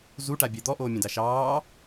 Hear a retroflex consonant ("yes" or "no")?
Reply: yes